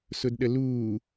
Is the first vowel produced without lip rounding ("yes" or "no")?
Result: no